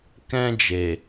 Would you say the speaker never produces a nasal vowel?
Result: no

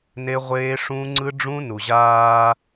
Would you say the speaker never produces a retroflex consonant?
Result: no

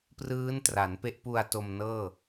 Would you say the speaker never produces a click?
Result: yes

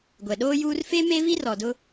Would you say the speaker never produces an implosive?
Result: no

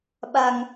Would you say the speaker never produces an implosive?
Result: no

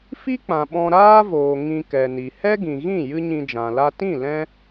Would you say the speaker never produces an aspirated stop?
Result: yes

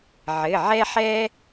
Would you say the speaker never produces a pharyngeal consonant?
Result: no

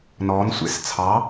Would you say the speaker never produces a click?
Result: yes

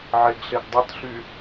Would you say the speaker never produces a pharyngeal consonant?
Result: no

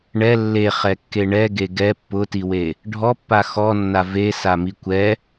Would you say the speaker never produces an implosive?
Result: yes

